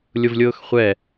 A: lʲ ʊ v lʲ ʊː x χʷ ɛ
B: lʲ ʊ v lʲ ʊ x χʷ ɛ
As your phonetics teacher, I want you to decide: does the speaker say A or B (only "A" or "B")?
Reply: A